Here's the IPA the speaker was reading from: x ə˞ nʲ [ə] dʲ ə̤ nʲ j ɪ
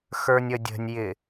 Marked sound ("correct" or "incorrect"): correct